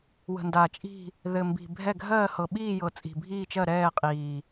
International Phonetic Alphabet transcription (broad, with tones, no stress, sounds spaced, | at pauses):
w ə̤˨˩ n d a˨˩ t͡ʃʼ i̤˦˨ | ð ɘ˨˩ m b i̤˨˩ bʱ ɛ˦˨ ɡʱ ɜː˦˨ h ɤ˨˩ ɓ iː˦˨ j ɤ˨˩ t͡sʼ i̤˨˩ bʱ iː˦˨ t͡ʃ ɜ˦˨ ɾ ɛː˦˨ qʼ iː˨˩